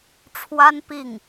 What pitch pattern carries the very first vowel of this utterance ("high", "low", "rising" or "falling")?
high